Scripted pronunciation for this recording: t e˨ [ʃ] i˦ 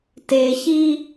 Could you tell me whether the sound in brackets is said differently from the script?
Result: yes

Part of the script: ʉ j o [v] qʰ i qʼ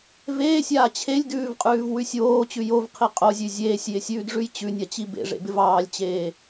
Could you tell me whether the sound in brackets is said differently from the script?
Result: no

